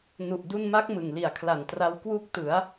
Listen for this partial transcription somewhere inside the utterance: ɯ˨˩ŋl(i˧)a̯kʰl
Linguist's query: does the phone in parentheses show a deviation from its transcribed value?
yes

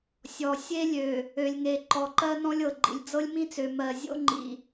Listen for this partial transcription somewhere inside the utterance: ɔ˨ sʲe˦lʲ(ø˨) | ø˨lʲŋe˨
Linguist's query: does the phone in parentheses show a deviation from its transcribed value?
no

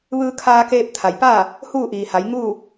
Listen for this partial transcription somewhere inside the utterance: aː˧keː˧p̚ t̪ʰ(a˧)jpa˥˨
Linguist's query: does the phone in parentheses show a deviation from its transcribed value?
yes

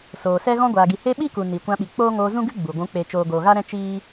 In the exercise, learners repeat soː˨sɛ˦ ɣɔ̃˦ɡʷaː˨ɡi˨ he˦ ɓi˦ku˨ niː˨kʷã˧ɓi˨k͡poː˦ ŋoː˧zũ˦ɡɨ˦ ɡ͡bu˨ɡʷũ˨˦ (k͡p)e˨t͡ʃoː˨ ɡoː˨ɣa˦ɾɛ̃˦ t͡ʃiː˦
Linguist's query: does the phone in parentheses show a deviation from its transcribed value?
no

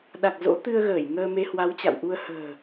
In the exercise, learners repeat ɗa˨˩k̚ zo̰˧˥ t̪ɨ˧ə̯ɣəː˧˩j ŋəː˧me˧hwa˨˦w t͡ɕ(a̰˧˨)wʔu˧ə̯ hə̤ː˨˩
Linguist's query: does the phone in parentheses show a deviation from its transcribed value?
no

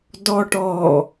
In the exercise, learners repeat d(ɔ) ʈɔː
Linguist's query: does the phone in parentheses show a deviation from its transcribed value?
no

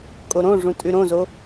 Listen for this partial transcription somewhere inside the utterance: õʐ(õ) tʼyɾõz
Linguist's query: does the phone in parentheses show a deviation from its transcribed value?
yes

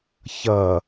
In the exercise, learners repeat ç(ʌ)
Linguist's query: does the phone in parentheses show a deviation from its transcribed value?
no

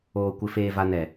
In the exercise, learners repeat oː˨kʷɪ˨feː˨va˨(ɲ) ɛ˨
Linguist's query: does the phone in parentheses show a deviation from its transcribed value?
yes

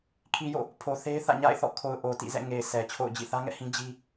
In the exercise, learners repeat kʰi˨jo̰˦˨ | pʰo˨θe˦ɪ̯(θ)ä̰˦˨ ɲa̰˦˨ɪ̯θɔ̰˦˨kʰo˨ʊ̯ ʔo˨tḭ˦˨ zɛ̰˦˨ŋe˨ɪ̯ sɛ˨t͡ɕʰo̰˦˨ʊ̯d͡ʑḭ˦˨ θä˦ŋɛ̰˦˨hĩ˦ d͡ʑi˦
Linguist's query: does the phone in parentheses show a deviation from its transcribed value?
no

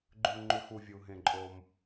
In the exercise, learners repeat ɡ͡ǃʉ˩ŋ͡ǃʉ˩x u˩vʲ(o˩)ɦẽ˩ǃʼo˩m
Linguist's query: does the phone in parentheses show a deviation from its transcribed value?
yes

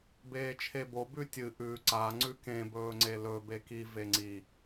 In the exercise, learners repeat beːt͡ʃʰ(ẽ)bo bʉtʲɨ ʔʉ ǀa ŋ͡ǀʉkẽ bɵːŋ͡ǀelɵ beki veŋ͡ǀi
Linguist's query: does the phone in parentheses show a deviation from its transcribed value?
yes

